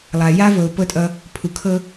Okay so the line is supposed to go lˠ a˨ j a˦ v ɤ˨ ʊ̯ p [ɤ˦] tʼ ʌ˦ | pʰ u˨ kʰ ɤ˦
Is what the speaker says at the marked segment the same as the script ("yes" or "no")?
yes